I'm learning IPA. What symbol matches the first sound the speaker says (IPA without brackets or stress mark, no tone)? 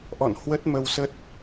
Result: ʔ